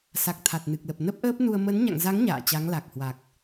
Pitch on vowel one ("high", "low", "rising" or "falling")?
low